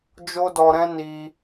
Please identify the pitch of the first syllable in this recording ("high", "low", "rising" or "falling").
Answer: high